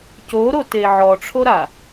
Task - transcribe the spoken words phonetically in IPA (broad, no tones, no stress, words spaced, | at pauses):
coɾote ʕɔʈ͡ʂʰoɾa